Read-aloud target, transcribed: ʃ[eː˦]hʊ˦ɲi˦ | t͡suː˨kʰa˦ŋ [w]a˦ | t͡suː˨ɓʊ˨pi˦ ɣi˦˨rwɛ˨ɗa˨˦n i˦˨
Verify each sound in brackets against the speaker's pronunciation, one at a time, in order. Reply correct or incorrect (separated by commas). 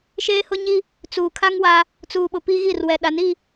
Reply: correct, correct